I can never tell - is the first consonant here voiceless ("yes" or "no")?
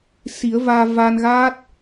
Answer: yes